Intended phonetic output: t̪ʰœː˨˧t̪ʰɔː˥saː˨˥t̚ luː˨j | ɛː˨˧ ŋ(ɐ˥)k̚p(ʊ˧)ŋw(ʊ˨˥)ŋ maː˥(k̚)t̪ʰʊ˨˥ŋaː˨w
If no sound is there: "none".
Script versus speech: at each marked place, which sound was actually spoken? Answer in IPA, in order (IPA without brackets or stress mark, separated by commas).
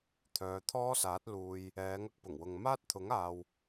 ɐ˧, ʊ˨˩, ʊ˨, t̚